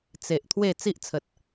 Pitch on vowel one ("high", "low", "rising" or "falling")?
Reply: low